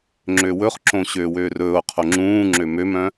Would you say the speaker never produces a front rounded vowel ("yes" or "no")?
no